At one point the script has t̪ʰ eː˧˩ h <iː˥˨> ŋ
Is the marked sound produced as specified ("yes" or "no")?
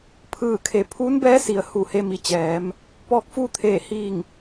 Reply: no